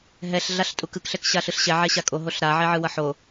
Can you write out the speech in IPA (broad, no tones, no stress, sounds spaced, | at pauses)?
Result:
ɦ ɛ ɬ ɮ a ɬ tʼ u k ɯ k ɬ ɛ k ɕ a ɬ ɯ ɬ ɕ ɛ ʕ ɛ ɕ a kʼ o ɦ o ɬ ɾ a ʕ ɛ ʕ ɯ w ʌ ħ o